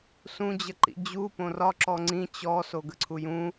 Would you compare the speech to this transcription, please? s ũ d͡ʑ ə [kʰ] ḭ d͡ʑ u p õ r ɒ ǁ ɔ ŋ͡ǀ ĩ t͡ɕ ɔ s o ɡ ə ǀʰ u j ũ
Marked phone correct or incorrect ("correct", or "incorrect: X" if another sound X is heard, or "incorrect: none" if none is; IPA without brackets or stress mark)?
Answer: incorrect: ǃ